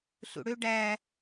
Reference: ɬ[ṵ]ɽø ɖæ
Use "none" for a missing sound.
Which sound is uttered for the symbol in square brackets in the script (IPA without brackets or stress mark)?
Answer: ṵ